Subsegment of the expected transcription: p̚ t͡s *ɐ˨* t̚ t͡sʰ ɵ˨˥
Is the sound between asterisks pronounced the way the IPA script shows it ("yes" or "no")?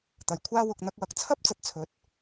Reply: yes